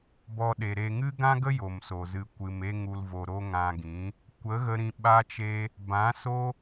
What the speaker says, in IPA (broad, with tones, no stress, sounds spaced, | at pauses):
b ɔ˧ ɗ e˨ ɾ e˨ ŋ ɨ˦ ɡ ã˦ ɡ ə˦ j o˨ m s o˨ z ɨ˧ kʷ ɨ˧ m e˦ ŋ u˧ l v o˧ ɾ o˦ ŋ ã˧ ɡ ĩ˨˦ | kʷ ə˨˦ ɣ ə˧ ɾ ĩ˧ ɓ a˦ t͡ʃ e˦ | b ã˨˦ s o˦